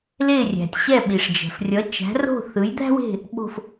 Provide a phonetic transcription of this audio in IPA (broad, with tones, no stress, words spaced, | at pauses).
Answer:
le˦˨rʲæ̤˩tʲ ɕɛ˦˨ ɓi˩ʂd͡ʒɛ̤˩f rʲʌ˨˦t͡ʃæ̤˨˦ro̤˦˨ θɯ˨˦jd̪æ̤˥we̤˦˨ | ɓo̤˦˨f